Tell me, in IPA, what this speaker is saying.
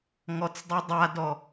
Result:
ŋ ɔ t͡s dˤ i dˤ a d ɔ

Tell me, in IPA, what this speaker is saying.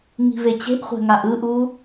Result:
ŋ i̤ v e t͡ɕ e̤ ʔ χʷ ɛ̤ ŋ a ʔ ɯ ʔ u

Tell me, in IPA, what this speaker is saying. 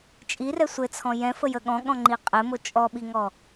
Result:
t͡ʃʼ i r ɛ sʷ ɘ t͡sʰ ɔ̃ j ɛ̃ f ə j ə ɠ ɔ̃ ɠ ɔ̃ ŋ͡ǃ i qʼ ɘ m o t͡ʃʼ ɔ ɓ i ŋ ɔ

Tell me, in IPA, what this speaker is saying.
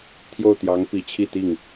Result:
t̪ʰ j o˥˩ ʊ̯ t̪ j ɑ˧˥ ŋ p i˨˩ t͡ɕʰ i˥˧ t̪ i˥˩ ŋ

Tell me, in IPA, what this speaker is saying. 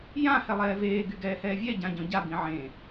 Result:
j ã h ɛ lˠ ɛː v eː ɡ y ɡ ɛː h ɛː vʲ ɛ ɟ ã ɟ ɔ̃ ɟ a b ĩ ʕ ẽ

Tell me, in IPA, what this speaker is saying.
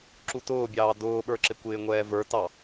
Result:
ǁ u t ʊː bʲ ɑː d ʊː ɓ ə˞ ǁ ɪ kʷ ɪː ŋʷ ɛː v ə˞ t ɑ

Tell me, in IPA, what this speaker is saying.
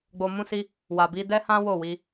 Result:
ɡ͡b o˧ m ũ˦ s i˦ | w a˨ b i˧ d ɛ˦ h ã˦ w o˦˨ w i˧

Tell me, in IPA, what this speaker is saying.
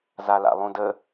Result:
z a l a̰ lˠ ũ d ə

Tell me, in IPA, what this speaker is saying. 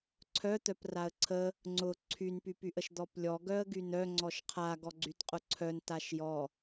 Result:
ǀʰ œ t̪ œ p r a ə̯ ǀʰ ə | ŋ͡ǀ ʊ ǀʰ y n p y p y ʔ ə ʃ d̪ ɔ p lʲ ɔ ɡ œ ə̯ ɡ y n œ ŋ͡ǀ ɔ ʃ qʰ a ɡ ɔ ɡ͡ǀ y t qʼ ʊ ǀʰ œ n t a ʃ j ɔ

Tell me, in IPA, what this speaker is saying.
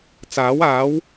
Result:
t͡s aː˨˥ w aː˨˥ w

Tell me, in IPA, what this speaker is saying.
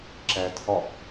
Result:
ǁ æ tʰ ɒ ʔ

